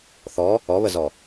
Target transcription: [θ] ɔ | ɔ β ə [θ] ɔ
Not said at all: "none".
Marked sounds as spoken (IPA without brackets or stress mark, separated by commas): θ, z